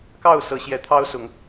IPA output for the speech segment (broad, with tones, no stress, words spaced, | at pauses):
kɑ˥˨ʊ̯sɤ˨˦ɕjɛ˨˦ t̪ʰɑ˦ʊ̯sʊ˨˦ŋ